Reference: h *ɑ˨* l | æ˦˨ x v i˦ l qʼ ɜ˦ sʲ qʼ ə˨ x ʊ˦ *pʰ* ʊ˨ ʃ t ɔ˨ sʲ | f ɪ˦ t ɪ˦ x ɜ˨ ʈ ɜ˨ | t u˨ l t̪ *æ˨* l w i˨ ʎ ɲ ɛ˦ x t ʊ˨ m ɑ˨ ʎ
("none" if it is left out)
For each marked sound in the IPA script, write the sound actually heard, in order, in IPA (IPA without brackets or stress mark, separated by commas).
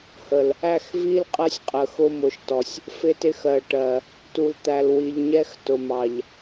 ə˨, m, æ˨